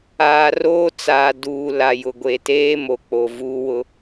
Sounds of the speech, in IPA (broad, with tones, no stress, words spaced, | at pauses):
aː˨ roː˦t͡saː˨duː˨ la˨jʊ˨ɡʷe˨teː˦ mo˨ k͡po˨vuː˦wʊ˦